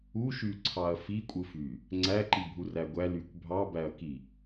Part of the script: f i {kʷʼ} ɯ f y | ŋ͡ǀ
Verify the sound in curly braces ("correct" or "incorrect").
correct